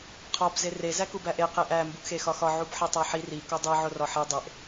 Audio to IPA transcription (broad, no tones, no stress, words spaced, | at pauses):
qʰɒb zere zækubæʔe qeʔæ mbuʔxexɒxɒ ʕubħetˤæħi ri kodˤe ʕorɒħe dˤeʔ